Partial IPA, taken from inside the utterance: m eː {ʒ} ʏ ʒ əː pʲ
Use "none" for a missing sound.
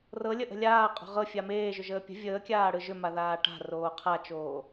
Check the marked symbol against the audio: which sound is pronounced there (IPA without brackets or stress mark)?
ʒ